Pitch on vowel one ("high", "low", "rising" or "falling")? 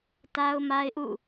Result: high